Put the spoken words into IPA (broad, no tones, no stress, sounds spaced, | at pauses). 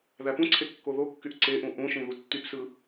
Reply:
ð æ p ũ ǀʰ e kː o ð o kː y ʔ ǀ e ʔ ũ ʔ ũ ʃ ĩ ð u tː y p s ɯ